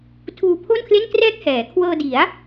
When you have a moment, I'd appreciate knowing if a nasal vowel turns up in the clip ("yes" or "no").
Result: no